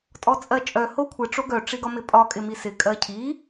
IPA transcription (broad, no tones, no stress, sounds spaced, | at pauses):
tʼ ɔ t͡sʼ ɜ t͡ʃʼ œ h o kʷʰ ɪ ʈ͡ʂ o ɡ œ ʈ͡ʂ i ɡ ɒ m ɪ pʼ ɒ kʼ ɪ m i s ɪ kʼ ɜ cʰ i